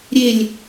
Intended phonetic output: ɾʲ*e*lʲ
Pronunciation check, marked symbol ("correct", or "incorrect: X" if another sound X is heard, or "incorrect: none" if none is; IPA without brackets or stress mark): correct